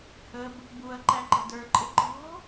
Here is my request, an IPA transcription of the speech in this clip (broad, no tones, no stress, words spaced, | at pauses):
həb | buɐ̯ ǃæǃə̤də˞ǃʼɪ ǃɔ̤